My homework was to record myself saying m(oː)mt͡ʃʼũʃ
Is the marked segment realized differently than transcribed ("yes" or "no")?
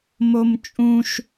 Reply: yes